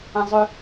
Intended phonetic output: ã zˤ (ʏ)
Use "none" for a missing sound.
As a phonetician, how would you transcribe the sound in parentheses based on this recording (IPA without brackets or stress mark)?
ʏ